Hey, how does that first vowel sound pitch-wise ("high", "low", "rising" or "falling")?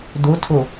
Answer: rising